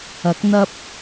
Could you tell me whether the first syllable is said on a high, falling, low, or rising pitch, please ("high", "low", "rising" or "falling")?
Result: rising